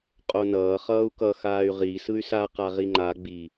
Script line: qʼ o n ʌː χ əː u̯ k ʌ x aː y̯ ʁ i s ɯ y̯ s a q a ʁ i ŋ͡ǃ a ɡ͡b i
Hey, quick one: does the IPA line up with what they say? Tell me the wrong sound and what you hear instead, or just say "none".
əː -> ʌː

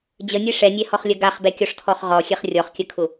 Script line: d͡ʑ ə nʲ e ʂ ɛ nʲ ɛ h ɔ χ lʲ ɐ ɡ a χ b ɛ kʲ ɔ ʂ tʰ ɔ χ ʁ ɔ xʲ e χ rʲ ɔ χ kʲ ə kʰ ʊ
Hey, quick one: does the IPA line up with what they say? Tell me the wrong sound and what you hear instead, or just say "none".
none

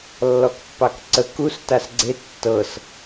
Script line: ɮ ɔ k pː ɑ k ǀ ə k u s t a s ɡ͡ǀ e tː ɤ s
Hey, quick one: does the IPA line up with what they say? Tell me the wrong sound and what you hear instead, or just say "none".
ɮ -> lː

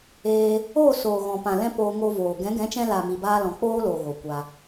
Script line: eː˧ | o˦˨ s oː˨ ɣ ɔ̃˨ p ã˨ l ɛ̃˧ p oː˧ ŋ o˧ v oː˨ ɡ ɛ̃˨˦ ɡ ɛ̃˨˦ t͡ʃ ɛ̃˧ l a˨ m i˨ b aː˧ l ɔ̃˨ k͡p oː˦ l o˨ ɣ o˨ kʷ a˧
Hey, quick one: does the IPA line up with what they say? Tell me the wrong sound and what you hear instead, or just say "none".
none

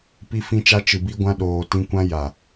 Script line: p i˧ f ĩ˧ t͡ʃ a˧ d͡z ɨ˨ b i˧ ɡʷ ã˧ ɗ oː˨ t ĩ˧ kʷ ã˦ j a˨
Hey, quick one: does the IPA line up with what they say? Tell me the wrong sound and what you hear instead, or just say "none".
d͡z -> t͡ʃ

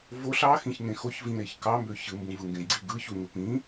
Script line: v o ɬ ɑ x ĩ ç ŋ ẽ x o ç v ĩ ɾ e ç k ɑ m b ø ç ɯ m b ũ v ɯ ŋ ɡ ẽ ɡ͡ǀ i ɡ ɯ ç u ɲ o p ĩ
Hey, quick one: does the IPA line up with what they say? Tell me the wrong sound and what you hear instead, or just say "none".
none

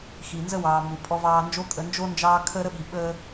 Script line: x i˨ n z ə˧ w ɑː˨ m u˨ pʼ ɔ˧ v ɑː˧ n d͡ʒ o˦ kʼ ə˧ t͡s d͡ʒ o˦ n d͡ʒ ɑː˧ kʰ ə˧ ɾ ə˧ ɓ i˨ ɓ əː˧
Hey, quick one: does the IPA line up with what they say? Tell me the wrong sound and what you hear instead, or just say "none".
t͡s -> n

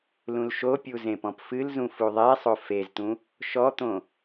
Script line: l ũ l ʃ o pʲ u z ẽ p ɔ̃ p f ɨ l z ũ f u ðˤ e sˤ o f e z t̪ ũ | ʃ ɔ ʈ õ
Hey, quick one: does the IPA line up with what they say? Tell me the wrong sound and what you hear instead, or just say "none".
ʈ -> t̪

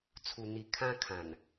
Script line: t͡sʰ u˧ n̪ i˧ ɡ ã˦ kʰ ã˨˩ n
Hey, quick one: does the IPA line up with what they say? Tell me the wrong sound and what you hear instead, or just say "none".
ɡ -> kʰ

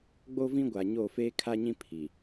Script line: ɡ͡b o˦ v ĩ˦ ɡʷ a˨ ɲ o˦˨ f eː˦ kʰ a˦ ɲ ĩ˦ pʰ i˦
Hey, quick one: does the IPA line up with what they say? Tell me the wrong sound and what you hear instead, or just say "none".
i˦ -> i˨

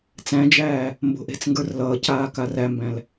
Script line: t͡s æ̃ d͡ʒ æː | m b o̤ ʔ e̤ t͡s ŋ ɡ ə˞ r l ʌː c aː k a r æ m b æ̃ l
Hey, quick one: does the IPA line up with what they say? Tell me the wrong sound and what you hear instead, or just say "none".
none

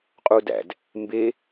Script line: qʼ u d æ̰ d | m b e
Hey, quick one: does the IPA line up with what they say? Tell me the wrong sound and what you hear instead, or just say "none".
none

